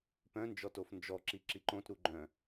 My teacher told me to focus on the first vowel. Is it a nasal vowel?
yes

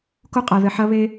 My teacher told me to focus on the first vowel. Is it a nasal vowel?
no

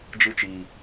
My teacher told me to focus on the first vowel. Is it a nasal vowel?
no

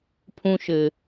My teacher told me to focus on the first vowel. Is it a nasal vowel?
yes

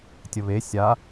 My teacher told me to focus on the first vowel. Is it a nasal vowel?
no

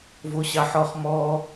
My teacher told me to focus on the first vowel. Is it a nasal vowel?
no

